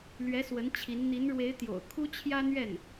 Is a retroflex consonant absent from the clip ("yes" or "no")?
no